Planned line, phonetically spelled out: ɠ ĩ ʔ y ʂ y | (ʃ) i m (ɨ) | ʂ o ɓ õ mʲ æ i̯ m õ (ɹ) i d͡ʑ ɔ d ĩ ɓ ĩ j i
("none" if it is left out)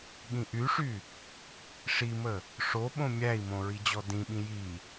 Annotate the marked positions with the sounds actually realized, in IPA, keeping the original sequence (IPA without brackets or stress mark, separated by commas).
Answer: ʂ, ə, ɹ